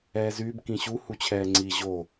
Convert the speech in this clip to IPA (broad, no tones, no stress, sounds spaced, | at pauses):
ɛː z yː b k ĩ ɕ u h u t͡ɕʰ ɛː ŋ͡ǀ i ʑ o